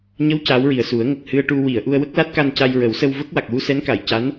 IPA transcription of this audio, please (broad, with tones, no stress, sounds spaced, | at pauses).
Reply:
ɲ ə˧˥ w c aː˧˥ w ɹ i˨˩ ə̯ s u˨˩˦ ə̯ ŋ ə˨˩ k̚ h ɨ˧ ə̯ ʈ u˧ w i˨˩˨ ə̯ ʔ u˧ ə̯ w ə˦˥ k̚ l a˦˥ t̚ k a˧ n c a˧ j ɹ ə˨˩˦ w s ə˧ w v ə˦˥ k̚ w a˨˩ k̚ w u˧ s ɛ˧˥ n k a˨˩˨ j c a˧˥ n